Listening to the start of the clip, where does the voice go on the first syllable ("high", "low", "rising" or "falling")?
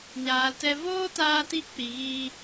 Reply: low